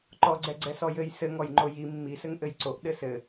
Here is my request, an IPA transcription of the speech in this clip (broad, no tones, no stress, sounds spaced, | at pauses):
ǃ ɔ ɡ͡ǀ ɛ ɡ͡ǀ ɛ s ɔ j ɘ j s ɘ ŋ ɔ j ŋ͡ǃ o j i mː i s ɘ ŋ ʔ ɘ j ǀ o ʔ ɗ ɘ s ɘ